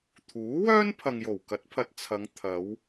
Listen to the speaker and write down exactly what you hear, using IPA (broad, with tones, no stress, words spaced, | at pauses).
t̪ʰuː˨˥wœː˥n pʰɐ˨ŋjo˨˩wkɐ˨˥t̚pʰɐ˨t̚ t͡sʰɐ˨˧ŋ t̪ʰɐ˨˧w